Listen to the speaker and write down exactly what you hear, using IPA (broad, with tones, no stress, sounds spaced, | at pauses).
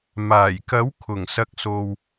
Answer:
m aː˨˩ j k ɐ˨˥ w kʰ ʊ˨˩ ŋ s ɐ˧ k̚ s o˧ w